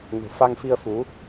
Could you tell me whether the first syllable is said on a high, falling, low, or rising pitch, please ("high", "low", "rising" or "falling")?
low